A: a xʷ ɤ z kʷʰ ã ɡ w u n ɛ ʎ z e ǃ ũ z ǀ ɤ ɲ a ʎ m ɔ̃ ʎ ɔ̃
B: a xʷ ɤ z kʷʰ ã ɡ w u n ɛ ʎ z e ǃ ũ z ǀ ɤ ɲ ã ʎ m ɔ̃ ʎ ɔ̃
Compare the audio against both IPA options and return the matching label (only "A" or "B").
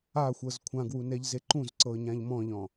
B